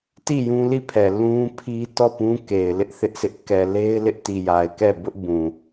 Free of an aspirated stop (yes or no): no